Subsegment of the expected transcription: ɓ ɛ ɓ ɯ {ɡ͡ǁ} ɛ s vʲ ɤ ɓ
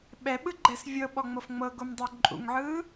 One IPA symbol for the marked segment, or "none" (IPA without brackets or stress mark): ɡ͡ǃ